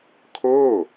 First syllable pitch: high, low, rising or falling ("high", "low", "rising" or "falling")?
falling